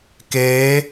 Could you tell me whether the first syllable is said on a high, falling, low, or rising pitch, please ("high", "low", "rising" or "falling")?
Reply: rising